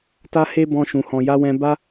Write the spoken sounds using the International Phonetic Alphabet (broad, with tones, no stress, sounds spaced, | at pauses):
t a˧ h e˧ b ɔ̃˧ ʃ ũ˨ h ɔ̃˨ j a˨˦ w ɛ̃˧ b a˧